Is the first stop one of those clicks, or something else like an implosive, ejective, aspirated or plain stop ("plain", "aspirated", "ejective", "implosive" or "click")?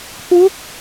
aspirated